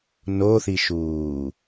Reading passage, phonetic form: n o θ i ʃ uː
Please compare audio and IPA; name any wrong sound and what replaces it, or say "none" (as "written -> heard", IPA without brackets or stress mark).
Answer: none